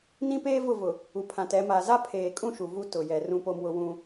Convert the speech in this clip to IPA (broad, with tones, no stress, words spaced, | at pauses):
nĩ˦peː˦ vʊ˦˨vʊ˨ | u˨pʰã˨tɛ˨˦ ma˨za˦ pʰeː˨kʼũ˦˨ ʃu˨vu˦ tʊ˨jɛ˨ rũ˦po˦mwʊ˦wũ˦